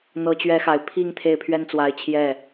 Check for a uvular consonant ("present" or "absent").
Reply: absent